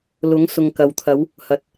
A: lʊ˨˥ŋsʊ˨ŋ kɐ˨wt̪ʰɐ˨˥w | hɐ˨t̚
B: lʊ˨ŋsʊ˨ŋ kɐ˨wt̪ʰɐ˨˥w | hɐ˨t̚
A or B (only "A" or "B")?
A